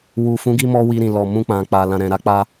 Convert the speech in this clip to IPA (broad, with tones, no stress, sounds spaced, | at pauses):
w u˨ f ũ˨˦ ɡ i˧ m ɔ˧ w i˧ ɾ ĩ˨ l ɔ˨ m ũ˧ k͡p ã˨ k͡p a˨ l ã˨ ɾ ɛ̃˨ ɾ a˧ k͡p a˧